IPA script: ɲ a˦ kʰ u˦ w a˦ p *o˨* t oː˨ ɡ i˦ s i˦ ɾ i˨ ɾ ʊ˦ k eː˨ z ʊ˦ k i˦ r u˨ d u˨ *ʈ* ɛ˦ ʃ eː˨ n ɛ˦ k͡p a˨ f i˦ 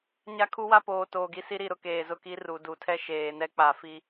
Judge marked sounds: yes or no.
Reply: no, no

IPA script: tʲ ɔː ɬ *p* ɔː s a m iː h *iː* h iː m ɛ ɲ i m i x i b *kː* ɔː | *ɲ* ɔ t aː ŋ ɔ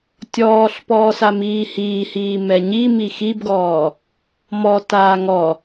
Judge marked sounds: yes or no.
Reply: yes, yes, no, no

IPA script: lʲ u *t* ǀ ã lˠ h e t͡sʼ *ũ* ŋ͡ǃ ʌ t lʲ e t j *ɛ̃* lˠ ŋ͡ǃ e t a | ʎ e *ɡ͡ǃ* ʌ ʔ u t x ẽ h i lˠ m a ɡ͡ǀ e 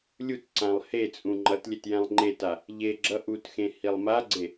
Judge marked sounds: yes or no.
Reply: yes, yes, yes, no

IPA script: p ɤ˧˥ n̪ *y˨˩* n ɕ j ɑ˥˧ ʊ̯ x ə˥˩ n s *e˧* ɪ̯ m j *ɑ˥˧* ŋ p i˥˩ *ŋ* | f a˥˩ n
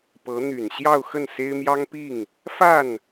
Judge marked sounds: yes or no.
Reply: yes, no, no, yes

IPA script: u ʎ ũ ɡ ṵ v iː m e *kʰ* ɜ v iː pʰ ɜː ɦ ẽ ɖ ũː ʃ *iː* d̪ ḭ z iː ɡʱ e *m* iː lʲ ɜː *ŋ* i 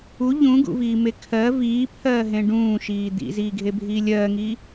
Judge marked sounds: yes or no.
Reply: yes, yes, no, yes

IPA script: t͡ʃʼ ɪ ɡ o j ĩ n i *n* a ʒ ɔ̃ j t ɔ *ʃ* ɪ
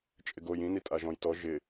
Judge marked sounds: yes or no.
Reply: no, no

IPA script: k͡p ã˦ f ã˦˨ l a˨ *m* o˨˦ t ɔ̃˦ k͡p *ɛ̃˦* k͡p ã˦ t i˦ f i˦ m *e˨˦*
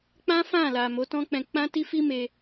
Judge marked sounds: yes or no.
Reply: yes, no, no

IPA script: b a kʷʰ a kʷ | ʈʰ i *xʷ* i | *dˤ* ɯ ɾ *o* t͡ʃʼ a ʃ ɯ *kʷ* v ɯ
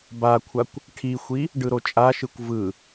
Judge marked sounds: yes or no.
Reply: yes, no, yes, yes

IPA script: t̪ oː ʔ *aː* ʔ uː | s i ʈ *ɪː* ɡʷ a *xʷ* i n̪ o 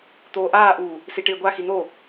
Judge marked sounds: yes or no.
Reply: yes, yes, no

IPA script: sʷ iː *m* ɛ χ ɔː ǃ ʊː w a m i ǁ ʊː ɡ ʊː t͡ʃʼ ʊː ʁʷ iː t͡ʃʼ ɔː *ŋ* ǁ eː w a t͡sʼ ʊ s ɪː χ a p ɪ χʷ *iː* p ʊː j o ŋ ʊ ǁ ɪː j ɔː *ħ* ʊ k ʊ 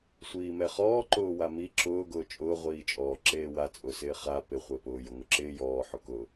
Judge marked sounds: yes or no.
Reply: yes, no, no, yes

